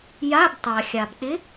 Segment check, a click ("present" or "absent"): absent